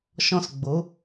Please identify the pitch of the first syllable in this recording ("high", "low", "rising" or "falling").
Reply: falling